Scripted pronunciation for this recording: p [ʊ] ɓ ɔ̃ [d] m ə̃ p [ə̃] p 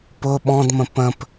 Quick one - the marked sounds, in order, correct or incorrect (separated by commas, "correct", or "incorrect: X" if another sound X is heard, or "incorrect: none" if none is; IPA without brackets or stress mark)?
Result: correct, correct, correct